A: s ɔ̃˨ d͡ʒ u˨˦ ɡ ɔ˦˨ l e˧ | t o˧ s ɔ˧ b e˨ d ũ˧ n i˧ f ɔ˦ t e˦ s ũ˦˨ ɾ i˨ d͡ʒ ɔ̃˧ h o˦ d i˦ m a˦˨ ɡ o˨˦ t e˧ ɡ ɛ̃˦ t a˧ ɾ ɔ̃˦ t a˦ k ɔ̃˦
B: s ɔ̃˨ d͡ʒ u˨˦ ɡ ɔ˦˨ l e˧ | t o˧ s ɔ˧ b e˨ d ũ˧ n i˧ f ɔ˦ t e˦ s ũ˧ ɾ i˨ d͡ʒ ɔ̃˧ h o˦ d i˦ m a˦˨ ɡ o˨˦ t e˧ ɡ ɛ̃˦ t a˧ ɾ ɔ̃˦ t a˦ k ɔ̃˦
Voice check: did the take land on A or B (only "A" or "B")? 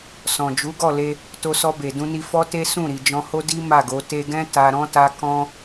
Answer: A